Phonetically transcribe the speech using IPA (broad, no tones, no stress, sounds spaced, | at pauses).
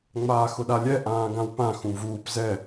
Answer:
ŋ͡m aː x ʊ ɗ a lʲ ɛ ʔ ãː ɡ ã w p ã x ũ v uː p z ɛ